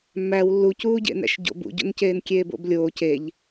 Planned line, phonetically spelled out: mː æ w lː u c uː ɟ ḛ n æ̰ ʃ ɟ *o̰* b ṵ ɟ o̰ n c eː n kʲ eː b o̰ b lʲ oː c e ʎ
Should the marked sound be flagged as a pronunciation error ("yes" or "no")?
no